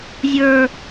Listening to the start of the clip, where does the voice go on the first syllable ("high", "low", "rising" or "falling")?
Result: high